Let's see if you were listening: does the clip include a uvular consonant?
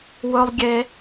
no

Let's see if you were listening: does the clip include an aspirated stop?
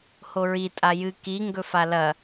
no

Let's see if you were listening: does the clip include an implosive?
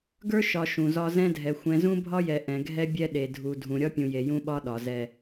yes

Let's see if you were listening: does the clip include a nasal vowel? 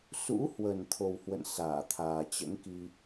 no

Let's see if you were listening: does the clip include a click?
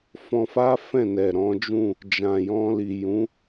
no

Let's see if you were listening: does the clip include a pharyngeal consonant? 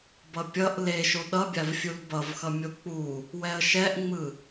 no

